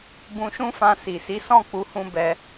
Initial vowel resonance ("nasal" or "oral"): nasal